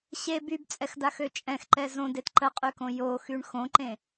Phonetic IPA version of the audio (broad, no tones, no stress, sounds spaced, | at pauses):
ɕ e b y b t͡sʼ ɛ x d a x ø t͡ʃʼ ɛ̃ x ǃ ɛ z õ d e t ǃ ə qʼ y k õ j o x y ɳ x õ ǃ ẽ